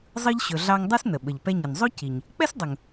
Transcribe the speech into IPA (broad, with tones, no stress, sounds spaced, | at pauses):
zˤ ɯ˦ ʎ ɕ ɵ˨ ɮ ɑ˦ ŋ dˤ ɯ˥ s n ə˩ ɓ ə˩ ʎ p ɛ˦ ɲ ə˩ n zˤ o˥ c i˩ ɲ | k͡p ɛ˥ s dˤ ɵ˩ ŋ